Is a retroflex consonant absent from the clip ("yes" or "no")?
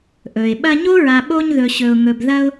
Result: yes